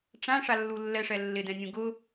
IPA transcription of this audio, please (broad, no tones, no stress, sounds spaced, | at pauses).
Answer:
ʈ͡ʂ ã ʂ a lː u lː ɛ ʂ ɛ lː ɪ d ɛ̃ nʲ ũ ɡ ʊ